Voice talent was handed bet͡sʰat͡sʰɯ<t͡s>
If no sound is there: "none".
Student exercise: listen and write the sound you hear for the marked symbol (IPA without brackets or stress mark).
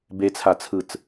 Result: t͡s